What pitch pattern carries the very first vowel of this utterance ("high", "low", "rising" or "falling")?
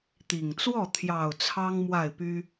low